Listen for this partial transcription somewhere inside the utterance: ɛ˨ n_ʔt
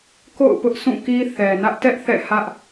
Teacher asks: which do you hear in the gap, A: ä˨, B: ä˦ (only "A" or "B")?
B